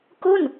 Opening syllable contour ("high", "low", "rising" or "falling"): falling